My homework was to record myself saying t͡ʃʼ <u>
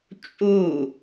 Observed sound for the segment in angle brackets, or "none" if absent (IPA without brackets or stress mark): u